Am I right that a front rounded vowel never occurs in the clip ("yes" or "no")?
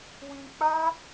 yes